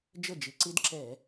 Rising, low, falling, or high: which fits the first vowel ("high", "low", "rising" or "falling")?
falling